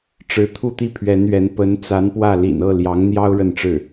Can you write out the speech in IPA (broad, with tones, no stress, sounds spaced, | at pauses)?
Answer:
ʈ͡ʂ ɻ̩˧˥ t̪ʰ u˥˧ t̪ i˥˩ pʰ ɥ ɛ˧˥ n ɥ ɛ˧˥ n p ə˧˥ n t͡s a˧˥ n p w ä˥˩ l ḭ˨˩ n ɤ˥˩ l j ɑ˧˥ ŋ n̪ j ɑ˥ ʊ̯ ɻ ə˥˧ n ʈ͡ʂ ɻ̩˥˩